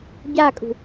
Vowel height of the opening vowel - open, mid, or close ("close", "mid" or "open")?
open